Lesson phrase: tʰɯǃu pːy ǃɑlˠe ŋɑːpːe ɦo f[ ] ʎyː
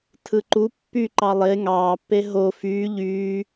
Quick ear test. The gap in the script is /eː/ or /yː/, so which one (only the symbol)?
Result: yː